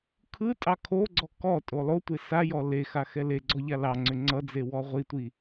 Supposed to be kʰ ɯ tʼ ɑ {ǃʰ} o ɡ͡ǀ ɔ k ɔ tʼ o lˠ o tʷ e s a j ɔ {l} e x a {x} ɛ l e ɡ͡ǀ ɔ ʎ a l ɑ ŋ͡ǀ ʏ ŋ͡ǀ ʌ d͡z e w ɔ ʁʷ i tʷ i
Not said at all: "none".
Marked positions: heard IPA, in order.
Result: kʰ, l, x

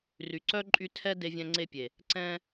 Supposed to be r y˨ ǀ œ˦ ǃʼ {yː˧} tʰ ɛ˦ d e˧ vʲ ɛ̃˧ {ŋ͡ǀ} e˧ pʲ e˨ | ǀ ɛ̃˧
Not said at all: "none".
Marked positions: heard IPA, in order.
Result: y˧, ŋ͡ǀ

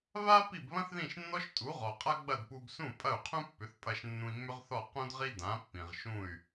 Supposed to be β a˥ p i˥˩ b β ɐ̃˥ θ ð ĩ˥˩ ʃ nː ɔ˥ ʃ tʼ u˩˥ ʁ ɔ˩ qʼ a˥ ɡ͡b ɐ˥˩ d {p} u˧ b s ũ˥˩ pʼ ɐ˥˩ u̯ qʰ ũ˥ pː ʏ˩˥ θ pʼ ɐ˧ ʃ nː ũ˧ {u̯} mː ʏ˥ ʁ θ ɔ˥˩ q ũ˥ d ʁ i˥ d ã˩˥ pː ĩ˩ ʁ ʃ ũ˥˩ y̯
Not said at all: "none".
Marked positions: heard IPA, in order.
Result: p, i̯

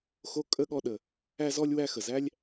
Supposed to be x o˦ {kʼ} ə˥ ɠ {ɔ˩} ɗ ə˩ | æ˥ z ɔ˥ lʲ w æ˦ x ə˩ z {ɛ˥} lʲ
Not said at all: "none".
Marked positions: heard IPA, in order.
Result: kʼ, ɔ˦, æ˥

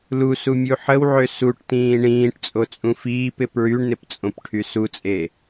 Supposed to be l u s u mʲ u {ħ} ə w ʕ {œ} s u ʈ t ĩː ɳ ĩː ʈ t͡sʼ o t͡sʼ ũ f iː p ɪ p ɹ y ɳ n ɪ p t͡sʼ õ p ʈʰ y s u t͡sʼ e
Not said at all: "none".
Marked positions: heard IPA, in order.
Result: ħ, ø

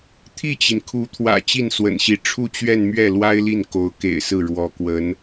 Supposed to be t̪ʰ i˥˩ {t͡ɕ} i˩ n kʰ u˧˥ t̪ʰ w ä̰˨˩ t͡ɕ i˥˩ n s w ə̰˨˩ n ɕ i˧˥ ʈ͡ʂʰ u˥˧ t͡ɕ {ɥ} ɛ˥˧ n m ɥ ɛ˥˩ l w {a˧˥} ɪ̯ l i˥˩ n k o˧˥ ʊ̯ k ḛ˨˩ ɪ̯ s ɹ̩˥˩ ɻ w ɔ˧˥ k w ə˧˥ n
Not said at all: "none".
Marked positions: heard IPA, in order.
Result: t͡ɕ, ɥ, a˥

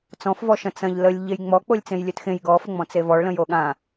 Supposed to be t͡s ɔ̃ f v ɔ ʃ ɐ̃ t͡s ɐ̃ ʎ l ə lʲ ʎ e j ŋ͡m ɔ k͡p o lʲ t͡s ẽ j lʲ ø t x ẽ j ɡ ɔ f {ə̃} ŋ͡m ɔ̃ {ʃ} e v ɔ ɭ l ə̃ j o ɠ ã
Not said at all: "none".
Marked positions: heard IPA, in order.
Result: ə, t͡s

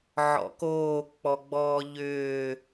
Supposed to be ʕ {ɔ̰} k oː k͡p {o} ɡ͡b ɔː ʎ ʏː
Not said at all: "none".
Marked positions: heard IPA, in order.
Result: ɔ̰, ɔ

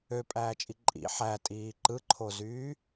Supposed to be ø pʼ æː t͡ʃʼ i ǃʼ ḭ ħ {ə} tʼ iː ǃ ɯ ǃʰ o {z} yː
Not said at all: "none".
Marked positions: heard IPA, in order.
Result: æ, z

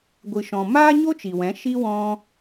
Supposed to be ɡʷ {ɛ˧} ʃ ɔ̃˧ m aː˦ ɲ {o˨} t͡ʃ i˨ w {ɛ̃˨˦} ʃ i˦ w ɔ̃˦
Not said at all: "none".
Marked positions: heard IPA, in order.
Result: ɨ˧, o˦, ɛ̃˨˦

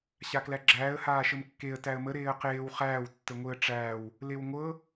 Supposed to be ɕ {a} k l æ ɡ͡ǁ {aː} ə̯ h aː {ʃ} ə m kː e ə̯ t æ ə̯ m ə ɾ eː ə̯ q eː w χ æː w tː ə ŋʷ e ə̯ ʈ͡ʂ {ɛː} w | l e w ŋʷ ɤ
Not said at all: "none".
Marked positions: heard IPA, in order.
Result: a, æː, ʃ, æː

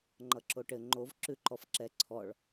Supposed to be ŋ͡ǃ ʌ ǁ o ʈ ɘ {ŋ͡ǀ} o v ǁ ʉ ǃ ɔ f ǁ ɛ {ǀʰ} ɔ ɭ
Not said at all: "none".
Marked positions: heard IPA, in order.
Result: ŋ͡ǃ, ǀʰ

